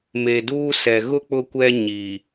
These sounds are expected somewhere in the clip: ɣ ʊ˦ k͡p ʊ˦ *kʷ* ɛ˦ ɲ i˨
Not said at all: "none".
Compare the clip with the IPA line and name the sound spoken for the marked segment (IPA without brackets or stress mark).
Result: kʷ